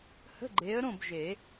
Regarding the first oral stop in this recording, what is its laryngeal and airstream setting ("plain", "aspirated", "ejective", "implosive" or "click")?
click